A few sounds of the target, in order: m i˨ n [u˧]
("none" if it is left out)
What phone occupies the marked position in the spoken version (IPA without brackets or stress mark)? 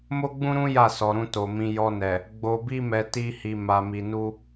u˧